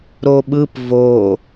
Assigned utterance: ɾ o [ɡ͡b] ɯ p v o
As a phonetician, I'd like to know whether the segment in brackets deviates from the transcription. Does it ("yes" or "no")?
yes